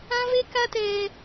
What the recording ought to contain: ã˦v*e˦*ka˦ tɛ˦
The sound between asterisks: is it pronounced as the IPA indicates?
yes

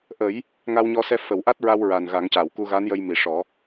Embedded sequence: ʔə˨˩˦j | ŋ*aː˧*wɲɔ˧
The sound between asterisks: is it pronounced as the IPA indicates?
no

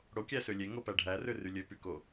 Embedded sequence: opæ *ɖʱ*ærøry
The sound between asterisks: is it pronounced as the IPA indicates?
yes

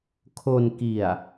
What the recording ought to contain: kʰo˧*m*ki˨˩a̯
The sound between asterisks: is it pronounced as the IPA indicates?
no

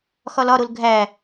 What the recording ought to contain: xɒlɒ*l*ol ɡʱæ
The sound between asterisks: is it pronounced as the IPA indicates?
no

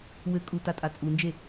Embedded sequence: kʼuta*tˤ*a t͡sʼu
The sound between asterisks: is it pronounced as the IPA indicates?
no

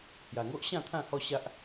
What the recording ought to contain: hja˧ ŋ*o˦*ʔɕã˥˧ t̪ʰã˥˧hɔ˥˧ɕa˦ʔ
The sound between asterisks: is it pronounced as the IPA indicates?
yes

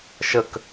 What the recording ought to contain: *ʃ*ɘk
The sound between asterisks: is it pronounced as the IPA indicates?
yes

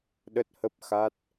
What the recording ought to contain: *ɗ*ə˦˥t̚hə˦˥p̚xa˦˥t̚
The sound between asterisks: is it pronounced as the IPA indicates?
yes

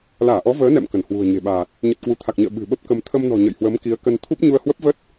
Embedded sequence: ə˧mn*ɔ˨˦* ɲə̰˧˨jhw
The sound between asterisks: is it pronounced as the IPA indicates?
no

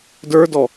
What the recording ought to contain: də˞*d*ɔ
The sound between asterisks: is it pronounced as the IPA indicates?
yes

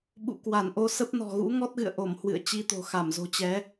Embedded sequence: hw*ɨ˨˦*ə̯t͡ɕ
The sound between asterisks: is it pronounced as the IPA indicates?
no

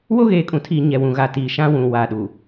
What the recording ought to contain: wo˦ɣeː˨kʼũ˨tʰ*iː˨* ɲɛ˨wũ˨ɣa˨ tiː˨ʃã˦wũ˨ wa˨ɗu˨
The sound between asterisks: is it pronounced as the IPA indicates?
yes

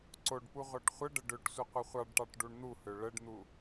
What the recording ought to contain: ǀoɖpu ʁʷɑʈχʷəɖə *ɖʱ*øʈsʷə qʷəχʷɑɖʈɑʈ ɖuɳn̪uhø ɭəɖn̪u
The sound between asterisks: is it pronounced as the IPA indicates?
no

